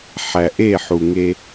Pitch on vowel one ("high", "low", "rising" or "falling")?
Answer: low